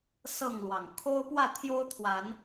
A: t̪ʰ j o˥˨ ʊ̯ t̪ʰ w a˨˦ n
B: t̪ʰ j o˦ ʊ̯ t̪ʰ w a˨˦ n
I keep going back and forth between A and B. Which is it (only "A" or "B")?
B